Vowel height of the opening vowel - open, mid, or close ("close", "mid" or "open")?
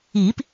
close